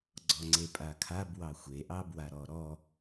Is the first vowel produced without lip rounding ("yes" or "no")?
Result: no